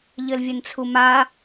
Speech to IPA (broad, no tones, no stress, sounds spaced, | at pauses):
ʎ ɘ l vʲ ɘ n t͡sʰ u m a